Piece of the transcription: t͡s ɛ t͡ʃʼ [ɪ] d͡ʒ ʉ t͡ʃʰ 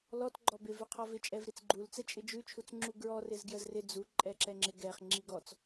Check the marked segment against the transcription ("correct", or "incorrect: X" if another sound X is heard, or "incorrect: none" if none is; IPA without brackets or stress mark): correct